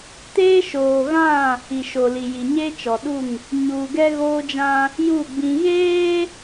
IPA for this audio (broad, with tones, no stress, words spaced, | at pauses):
teː˦ʃoː˨ɣã˦˨ | i˨ʃo˨li˨ ji˨ɲe˦t͡ʃɔ˨ɗu˦˨ŋ | ɲuː˨ɡɛ˦ɣoː˦d͡ʒã˦ | ju˦˨ ɡ͡bĩ˦ ɣeː˦